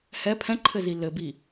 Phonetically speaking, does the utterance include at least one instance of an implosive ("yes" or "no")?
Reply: no